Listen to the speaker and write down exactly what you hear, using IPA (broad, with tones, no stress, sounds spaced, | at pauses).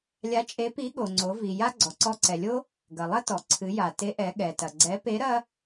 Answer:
lʲ a˧˥ t͡ʃʼ e˧˥ p i˧˥ ɠ o˩ ŋ͡ǀ o˩˧ v i˩ j a˥ ɡ͡ǀ ɔ˩ ǀ ɔ˧ ǀ ɛ˩ lʲ o˥ | ɡ ɐ˩ lˠ ɐ˥ t ɔ˩ ǀʰ ɨ˩˧ j a˩ t e˧˥ ʔ ɛ˩˧ ɠ ɛ˩ t ɐ˩ ɡ͡ǀ ɛ˧˥ p e˧˥ ɾ ɐ˥